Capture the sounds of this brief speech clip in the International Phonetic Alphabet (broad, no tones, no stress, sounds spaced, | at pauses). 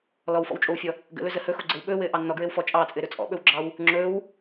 l ɔ w f ɔ̰ w t͡ʃʼ o w fʲ ɔ | ɡ ə̰ l ɵ z ə h ɵ x o ɡ͡ǀ ɘ w ɓ ɵː w ɘː ʔ ɑ nː ɔ ɡ ɹ ɘ w f ɔ t͡ʃʼ ɑː t͡sʼ ɘː ɾ ɵ t͡sʼ ɔ̰ ɓ ɵ w ɡ͡ǁ ɑ w | ŋ͡ǁ ɵː w